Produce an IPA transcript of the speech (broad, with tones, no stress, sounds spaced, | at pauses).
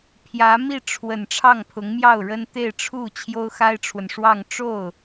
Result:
pʰ j ä˧˥ m i˥˩ ʈ͡ʂʰ w ə˨˩ n ʈ͡ʂʰ ɑ˥˩ ŋ pʰ ʊ˧˥ ŋ m j ɑ˥˩ ʊ̯ ɻ ə˥ n t̪ e˥˧ ɪ̯ ʈ͡ʂʰ u˥˩ t͡ɕʰ j o˥ ʊ̯ x a˥ ɪ̯ ʈ͡ʂʰ w ə˨ n ʂ w ɑ˥˧ ŋ ʈ͡ʂ o˥˩ ʊ̯